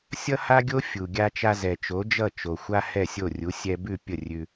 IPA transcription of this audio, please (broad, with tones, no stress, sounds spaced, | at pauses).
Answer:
sʲ ʌ˥ h a˥ ɡʲ o˥ fʲ u˩ ɡʲ a˧ t͡ʃ a˧ z ɛ˩ t͡ʃ o˩˥ d͡ʒ ʌ˥˩ t͡ʃ o˩ xʷ a˥ h ɛ˥˩ sʲ o˥˩ rʲ u˩˥ sʲ ɛ˧ b ʉ˥˩ pʲ ə˥˩ rʲ ʉ˧